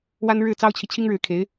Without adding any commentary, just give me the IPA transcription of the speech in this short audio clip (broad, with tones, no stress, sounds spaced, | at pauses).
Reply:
w a˥ n ɻ ɻ̩˥˩ t͡s ɑ˥ ʊ̯ t͡ɕʰ i˨ t͡ɕʰ i˥ ŋ ɻ ɻ̩˧˥ kʰ e˧˥ ɪ̯